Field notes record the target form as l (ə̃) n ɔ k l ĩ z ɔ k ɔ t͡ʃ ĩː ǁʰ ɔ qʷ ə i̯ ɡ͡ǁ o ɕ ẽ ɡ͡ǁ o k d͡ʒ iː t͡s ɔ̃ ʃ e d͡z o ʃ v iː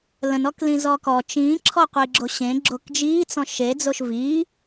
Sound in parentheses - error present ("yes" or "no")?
no